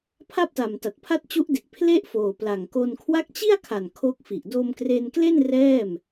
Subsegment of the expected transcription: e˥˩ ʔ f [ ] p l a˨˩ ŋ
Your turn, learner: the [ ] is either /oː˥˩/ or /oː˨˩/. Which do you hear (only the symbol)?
oː˨˩